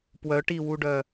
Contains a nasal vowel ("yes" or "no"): no